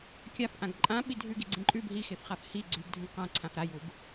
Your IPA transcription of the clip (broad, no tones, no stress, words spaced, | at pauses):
kʲafʔãɡ ǃʼã ɓidʱʉ ɡiɡ͡ǀĩǃʼʉb ɦixefχaf hi ɡ͡ǀʉɡdʱə̃ɡ qã ǀʰãfɾajuɡ